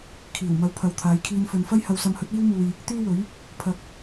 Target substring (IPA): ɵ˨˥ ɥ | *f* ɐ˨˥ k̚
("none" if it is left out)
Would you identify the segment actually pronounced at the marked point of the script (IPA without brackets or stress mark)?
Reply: pʰ